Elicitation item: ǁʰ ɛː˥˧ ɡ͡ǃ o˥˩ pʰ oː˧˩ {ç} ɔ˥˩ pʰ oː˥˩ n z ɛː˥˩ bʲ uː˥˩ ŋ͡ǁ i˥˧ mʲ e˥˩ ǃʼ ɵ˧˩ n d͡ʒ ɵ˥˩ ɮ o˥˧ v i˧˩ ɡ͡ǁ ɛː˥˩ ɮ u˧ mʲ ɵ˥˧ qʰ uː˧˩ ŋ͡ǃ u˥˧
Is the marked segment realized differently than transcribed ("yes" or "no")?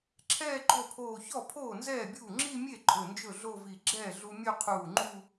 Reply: no